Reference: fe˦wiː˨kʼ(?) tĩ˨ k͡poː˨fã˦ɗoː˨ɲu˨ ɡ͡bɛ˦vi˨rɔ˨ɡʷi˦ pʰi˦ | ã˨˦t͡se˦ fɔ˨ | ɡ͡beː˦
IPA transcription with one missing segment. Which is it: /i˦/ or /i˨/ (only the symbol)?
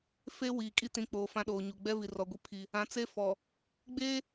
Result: i˦